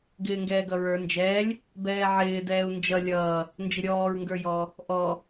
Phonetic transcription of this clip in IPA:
ɡ ɪː ŋ ɡ ɛː ɡ ʌ ɹ ə˞ n d͡ʒ ɛː lʲ | b ɛː ʕ ɪː d ɛː u̯ n d͡ʒ ʌ lʲ ʌː | n d͡ʒ ɪ ɾʲ ɔː ɹ ŋ ɡ ə˞ j ɔ | ʔ ɔ

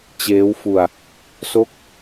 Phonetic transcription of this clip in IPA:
t͡ɕ eː˦˥ w f u˧ a̯ | s o˦˥ k̚

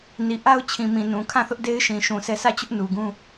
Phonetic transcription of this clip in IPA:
n i˨ ʔ a˦ ʊ̯ t͡ɕʰ ĩ˨ m ĩ˨ n ũ˨ kʰ ã˦˨ θ ʊ˦ ʔ d e˦ ɪ̯ ʃ ĩ˨ ʃ ũ˨ sʰ ɛ˦ sʰ ä˦˨ t͡ɕ ʊ˦ ʔ n u˨ ɡ ũ˦

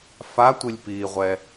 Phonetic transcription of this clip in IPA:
f a tʷ i lʲ p iː ʁʷ ɛ

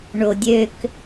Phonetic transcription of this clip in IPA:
ɳ o dʲ ø k

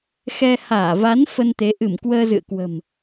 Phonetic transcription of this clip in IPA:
x ɛ˧ h aː˧˩ v a˨˦ n f ə˧ n t̪ e˨˦ ʔ ɨ˧˩ m k w əː˧ z ɨ̰˧˨ ə̯ k w ə̤˨˩ m

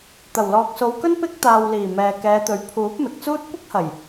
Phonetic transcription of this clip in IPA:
t̪ ɐ˨˩ w l ɔː˨ k̚ s o˨˧ w k ɵ˥ n p ɪ˧ k̚ t̪ aː˨ w l iː˨˩ m ɛː˨ k ɛː˨˧ t̪ ɵ˨ ɥ pʰ uː˨˥ p̚ m ɪ˨ k̚ t͡s uː˥ t̚ kʷ ɪ˥ k̚ h ɐ˨˩ j

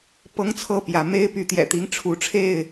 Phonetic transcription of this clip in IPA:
p ɤ˦ ŋ t͡sʰ ɤ˥˨ p j ä˨˦ m e˦ ɪ̯ p y˨˦ t̪ j ɛ̰˨˩ t̪ i˦ ŋ ʈ͡ʂʰ u˨˦ ʈ͡ʂʰ e˥˨ ɪ̯

